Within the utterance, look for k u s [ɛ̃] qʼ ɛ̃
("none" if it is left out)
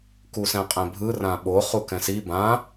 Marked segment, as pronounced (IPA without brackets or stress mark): ɛ̃